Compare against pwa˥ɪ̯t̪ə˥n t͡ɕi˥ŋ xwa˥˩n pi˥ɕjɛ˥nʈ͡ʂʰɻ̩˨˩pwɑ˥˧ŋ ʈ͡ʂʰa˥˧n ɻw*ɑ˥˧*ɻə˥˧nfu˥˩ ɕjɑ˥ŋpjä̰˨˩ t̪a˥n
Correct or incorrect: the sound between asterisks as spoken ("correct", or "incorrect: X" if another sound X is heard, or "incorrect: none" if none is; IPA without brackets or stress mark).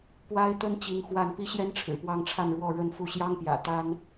incorrect: ɔ˥˧